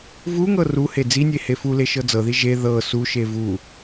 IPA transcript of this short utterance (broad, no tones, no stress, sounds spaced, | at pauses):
v u ŋ ɤ r u h e d͡z i nʲ e h e f u l e ʃ ɤ d͡z ɤ ð i ʒ e ð ɤ s u ʃ e v u